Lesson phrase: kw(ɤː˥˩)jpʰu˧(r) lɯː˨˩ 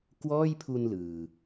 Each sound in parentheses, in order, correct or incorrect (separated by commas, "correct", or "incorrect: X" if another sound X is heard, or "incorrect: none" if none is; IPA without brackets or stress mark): incorrect: ɔː˥˩, incorrect: n